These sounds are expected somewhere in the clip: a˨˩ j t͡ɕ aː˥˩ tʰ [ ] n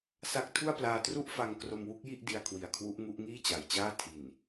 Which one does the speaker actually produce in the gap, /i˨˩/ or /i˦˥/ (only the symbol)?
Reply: i˨˩